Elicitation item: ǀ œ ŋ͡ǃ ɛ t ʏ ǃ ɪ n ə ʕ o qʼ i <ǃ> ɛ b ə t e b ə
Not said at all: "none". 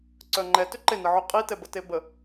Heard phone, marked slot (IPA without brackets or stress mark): t